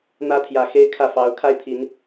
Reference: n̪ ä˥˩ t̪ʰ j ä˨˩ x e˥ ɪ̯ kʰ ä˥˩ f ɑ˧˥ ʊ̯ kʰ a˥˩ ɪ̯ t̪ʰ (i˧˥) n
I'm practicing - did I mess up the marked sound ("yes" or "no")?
no